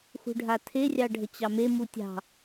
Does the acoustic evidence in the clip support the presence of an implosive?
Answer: no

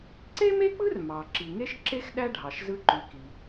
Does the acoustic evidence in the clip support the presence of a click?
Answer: yes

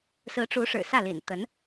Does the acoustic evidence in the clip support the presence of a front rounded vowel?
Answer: no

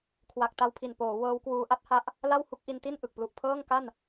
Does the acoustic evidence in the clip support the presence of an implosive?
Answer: no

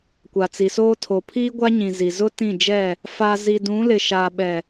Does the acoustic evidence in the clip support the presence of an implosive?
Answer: yes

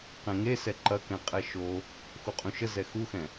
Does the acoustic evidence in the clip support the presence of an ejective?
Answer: yes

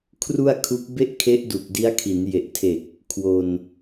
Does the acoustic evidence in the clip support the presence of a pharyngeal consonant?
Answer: no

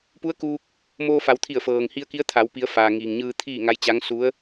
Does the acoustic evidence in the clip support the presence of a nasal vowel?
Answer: no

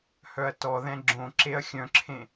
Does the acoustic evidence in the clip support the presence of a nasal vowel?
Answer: yes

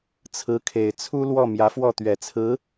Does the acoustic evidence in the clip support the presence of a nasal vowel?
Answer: no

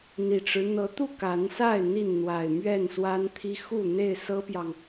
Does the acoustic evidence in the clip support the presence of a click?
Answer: no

